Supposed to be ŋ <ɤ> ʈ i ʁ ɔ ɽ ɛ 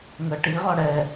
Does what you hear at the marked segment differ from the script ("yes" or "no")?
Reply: no